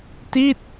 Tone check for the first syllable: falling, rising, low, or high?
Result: falling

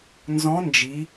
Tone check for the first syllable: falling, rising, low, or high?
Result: rising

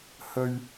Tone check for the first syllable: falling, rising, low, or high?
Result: low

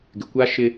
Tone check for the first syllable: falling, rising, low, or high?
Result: low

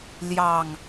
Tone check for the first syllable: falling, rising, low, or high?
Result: low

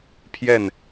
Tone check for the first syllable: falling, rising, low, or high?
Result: falling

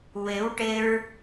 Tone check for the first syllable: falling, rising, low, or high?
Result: rising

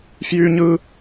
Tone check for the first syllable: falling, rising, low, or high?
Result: high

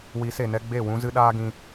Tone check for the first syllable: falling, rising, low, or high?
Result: rising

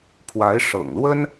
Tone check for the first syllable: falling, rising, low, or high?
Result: rising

